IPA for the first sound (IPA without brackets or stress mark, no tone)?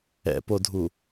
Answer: ɛ̰